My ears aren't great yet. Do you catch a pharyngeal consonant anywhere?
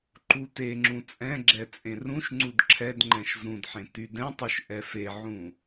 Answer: yes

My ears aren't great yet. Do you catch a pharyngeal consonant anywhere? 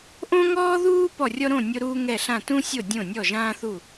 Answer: no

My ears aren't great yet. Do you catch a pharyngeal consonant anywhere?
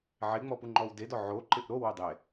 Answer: yes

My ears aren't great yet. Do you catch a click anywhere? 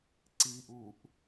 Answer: yes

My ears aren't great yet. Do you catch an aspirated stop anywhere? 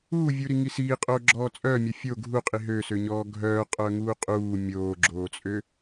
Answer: no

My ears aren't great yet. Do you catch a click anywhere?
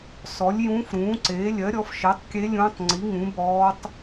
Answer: yes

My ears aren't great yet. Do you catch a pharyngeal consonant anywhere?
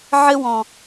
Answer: yes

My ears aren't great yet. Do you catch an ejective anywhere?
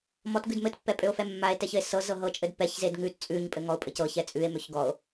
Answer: yes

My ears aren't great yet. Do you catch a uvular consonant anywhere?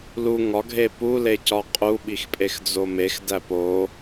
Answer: yes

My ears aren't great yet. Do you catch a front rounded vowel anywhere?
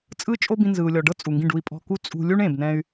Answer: yes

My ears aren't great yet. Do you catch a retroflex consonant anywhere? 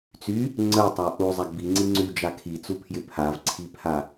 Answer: no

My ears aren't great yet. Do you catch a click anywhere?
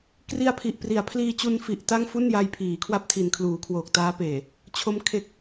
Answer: no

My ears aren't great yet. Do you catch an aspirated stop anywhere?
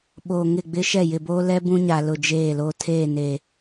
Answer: yes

